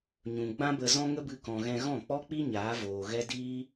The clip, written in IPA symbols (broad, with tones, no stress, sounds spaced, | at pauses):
ɲ ũ˨ ɡ͡b ã˦ b ə˧ z ɔ̃˦ ŋ ə˦ b ɨ˧ k ɔ̃˨ ɣ ɛ̃˧ ɣ ɔ̃˦˨ k͡p ɔ˦ k͡p i˦ ɲ aː˨˦ v oː˨ ɣ ɛ˦ d iː˦